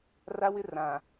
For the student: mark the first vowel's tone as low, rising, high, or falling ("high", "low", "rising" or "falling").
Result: high